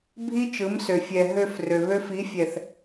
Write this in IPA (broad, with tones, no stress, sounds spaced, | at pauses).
bʱ i˦ t͡ʃ ɯ˨˦ m s ø˨ fʲ ɛ˨ ɦ ø˧ f r ø˨ β ø˦ f i˨˦ fʲ ɛ˨ θ